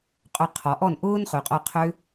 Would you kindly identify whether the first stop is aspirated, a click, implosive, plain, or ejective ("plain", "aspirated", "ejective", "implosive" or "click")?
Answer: ejective